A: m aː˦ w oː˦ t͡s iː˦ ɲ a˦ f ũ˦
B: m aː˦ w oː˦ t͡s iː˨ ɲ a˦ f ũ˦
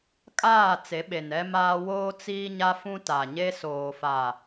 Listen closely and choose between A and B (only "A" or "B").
A